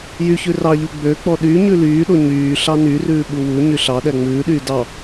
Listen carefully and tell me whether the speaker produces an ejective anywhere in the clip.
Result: no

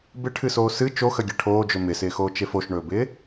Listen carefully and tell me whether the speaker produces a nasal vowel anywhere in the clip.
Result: no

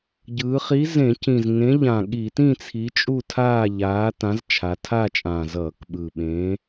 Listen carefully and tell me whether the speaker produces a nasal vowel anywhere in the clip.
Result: yes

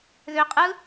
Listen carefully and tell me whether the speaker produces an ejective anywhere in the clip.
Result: yes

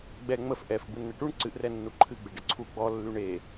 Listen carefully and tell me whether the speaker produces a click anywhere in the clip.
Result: yes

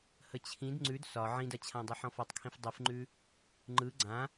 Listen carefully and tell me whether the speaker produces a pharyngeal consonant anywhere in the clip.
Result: yes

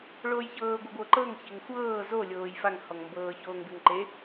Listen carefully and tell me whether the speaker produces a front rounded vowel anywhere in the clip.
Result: no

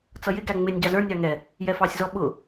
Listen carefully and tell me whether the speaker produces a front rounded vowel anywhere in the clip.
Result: no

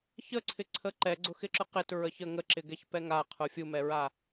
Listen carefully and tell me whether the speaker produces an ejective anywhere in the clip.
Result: no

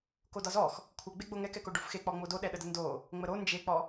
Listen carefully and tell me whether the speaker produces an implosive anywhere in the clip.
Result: yes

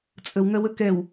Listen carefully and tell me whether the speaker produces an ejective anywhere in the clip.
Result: yes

